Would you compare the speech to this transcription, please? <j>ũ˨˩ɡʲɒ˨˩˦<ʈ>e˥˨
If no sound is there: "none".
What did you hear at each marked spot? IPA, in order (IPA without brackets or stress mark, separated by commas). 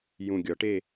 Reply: j, ʈ